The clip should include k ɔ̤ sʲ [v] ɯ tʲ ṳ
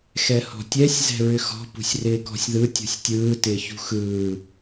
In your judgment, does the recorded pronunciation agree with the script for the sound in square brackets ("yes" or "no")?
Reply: no